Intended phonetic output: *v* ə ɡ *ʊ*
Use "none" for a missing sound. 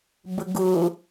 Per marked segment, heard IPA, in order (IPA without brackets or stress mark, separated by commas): b, ʊ